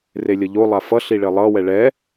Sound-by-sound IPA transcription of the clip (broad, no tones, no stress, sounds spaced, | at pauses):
r e lʲ ʌ ʎ o lˠ a f ʌ ɬ i ɭ e lˠ ʌ w ɛ ɭ ɛ